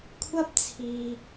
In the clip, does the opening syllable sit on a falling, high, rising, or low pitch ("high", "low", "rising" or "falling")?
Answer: high